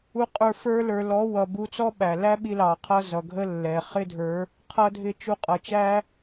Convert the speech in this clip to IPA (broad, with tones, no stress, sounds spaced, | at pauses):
u˧ qʼ ə˞˧ f ə˞˧ l ə˞˨ l ɔ˨˦ w ʌ˨ b u˧ t͡s ɔ˦ ɓ æ˨ l æ˦ ɓ i˧ l ɑ˨ qʰ ʌ˧ z ʌ˨ ɡʱ ə˦ lː ɛ˨ χ ɪ˦ dʱ ə˞˨˦ | qʰ ʌ˦ dʱ ɪ˦ t͡ʃ u˧ qʼ ʌ˨ t͡ʃ æ˦